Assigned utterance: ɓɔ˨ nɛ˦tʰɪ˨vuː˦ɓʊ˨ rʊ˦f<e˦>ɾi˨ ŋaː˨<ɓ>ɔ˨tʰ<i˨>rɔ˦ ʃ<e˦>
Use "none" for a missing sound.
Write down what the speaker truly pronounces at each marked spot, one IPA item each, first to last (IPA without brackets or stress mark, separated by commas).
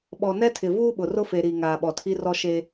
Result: e˨, ɓ, i˦, e˦